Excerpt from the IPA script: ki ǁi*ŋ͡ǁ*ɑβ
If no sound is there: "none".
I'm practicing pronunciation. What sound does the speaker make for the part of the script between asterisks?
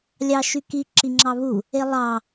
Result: ŋ͡ǁ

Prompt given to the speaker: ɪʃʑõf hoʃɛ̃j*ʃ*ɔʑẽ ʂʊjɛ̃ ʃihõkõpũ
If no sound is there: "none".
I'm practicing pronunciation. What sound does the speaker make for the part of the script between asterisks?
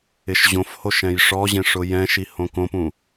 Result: ʂ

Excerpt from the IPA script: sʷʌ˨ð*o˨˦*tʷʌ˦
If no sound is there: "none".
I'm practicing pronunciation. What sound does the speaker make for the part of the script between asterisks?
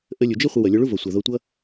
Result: o˧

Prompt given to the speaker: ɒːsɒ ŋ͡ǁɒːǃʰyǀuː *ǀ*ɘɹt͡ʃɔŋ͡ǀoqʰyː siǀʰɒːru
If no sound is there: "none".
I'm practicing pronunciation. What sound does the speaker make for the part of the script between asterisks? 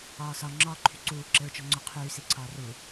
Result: ǁ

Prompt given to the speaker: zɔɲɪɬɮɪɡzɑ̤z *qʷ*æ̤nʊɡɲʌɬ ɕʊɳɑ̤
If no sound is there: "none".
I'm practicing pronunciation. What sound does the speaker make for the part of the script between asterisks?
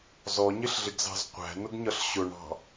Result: qʷ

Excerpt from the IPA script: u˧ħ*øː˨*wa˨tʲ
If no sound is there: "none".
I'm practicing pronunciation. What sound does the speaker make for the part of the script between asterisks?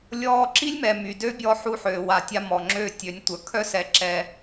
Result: øː˨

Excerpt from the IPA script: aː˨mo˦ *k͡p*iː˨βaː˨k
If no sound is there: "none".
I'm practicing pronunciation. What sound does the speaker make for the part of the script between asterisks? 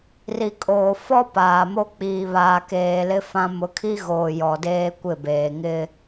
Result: k͡p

